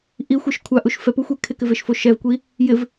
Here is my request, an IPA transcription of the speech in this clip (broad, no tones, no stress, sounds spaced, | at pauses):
ʔ i xʷ e ʃ kʷʰ a ʔ u ʃ f ɛ p u xʷ e kʰ ɪ k ɪ v e ʃ f o ʃ ɛ v kʷ i | j ɪ v